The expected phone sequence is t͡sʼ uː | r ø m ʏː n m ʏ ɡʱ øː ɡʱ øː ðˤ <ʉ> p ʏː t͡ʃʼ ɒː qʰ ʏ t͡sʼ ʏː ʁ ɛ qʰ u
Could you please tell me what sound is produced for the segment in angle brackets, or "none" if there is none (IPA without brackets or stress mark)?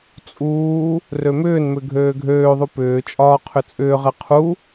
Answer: u